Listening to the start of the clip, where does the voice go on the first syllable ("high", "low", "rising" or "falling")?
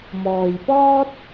low